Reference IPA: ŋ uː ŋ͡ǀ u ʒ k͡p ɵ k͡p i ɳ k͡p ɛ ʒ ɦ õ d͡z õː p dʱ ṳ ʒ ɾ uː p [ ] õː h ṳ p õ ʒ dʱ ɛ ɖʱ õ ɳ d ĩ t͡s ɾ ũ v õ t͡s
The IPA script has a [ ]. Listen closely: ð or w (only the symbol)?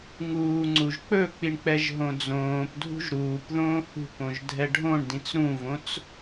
ð